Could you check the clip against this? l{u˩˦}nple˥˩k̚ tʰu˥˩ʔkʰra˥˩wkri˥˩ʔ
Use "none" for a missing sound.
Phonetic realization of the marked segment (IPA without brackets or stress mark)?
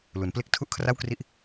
u˩˦